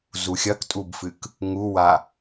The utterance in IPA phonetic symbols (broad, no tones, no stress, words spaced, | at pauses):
zuxʲɐktʼubfɨk | ŋuwa